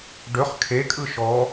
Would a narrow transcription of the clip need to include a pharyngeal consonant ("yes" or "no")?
no